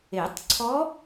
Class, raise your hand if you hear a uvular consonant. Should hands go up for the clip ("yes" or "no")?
no